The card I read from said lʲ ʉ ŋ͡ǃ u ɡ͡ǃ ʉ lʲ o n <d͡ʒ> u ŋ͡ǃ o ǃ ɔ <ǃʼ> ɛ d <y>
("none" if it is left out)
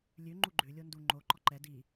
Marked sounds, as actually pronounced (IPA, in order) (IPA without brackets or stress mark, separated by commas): d, ǃ, i